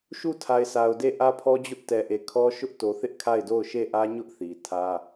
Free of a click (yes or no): yes